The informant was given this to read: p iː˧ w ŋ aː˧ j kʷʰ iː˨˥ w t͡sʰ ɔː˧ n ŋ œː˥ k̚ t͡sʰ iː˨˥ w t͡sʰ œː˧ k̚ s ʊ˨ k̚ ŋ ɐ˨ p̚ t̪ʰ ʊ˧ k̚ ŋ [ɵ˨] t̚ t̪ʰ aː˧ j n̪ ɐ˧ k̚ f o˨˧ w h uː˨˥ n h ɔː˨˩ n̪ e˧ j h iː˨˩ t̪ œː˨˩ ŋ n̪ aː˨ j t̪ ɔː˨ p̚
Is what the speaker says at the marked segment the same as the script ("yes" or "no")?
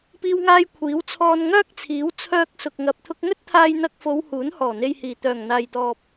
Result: no